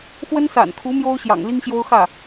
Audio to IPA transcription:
x w ə˥ n s a̰˨˩ n kʰ u˧˥ m j o˥ ʊ̯ ɕ j ɑ̰˨˩ ŋ l i˥ ŋ ɕ j o˥ ʊ̯ x ä˥˩

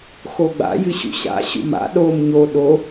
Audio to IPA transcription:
x o ɡ͡b a̰ j ɨ ɕ ṵ ɕ a̰ ɕ ṵ m a̰ ɗ o m ɲ o ɗ o

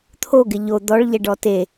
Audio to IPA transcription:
t̪ʰ o ɡ ɪ ʎ o d̪ ɔ ɭ ʎ ɛ ɖ ɔ t e

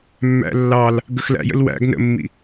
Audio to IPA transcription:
mː æ̰ lː ɑ l | ɡ ə x l æ̰ j ə̰ l w æ̰ ɡ n ə̰ mː ḭ

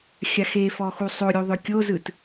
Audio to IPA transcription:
xʲ a x e f ɔ x u sˤ o ɾʲ u ðˤ ʏ kʲ o z ɯ t

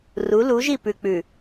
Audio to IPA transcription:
r u˨˦ l u˨˦ ʒ i˦˨ p ʉ˨ k͡p ʉ˨

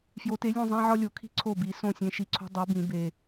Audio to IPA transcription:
f j o˨˥ t e˨˥ lʲ ũ˦˨ zˤ æ̃˦ ʕ ɒ˦ lʲ o˨˩˦ kʰ i̤˦ ǀʰ o˦˨ b i˨˩˦ s õ˦˨ sʲ ẽ˨˥ ʃ i˨ ǀʰ o̤˦ dˤ o˨˥ b ĩ˨˩˦ b e˨

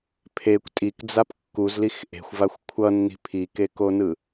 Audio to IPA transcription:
pʰ e kʷ tʼ i k d͡z a p kː u z l i x ʔ e̤ xʷ v a xʷ kʷʰ ʌ nː i̤ pʰ i k e k o n ɯ

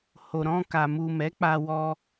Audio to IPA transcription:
h o˨ ɾ ɔ̃˧ k a˨ m u˨ m ɛ˨˦ k͡p a˧ w ɔ˧

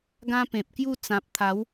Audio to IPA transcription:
ɡ ã˦ p ẽ˨ p̚ k j u˥˧ t͡s ã˨ p̚ t̪ʰ a˨˦ w

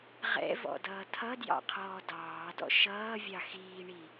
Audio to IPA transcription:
ʁ ɛ̰ v ɔ̰ d ʌː tʰ ʌ d j ɑ̰ qʰ ɔː d ɑː d ɔ̰ ʃ ʌː vʲ ɑ x iː ɳ i

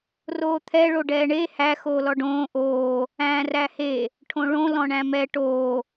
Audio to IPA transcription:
r oː t̪ʰ ɛ ɭ o ɖ ɛː ɳ e h æ x oː l ɔ ɖ õː ʔ oː | æ̃ː r æ h e | ʈʰ õ ɭ õ l ɔ̃ ɳ æ̃ m ɛ ʈ oː

